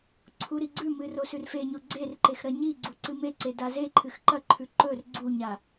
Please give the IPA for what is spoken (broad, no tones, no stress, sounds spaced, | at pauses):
ǀʰ u ɾ i ɡ͡ǀ ʉ m ɨ r o s ʉ r f e ɲ o ɡ͡ǀ e r ǃ e x ɾ ɐ ɲ i ɡ͡ǀ u ǀ ɨ m e ǀ e d a z e ǃʰ ɨ x ǃ ɐ ǃʰ ʉ ǃ ɵ r ɡ͡ǀ u ɲ a